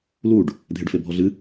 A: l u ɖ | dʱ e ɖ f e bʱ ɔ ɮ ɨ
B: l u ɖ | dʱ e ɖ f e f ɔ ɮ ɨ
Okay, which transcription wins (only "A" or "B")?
A